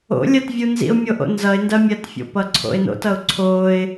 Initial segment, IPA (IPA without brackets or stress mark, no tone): o̰